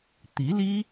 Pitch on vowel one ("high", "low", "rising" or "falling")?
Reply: rising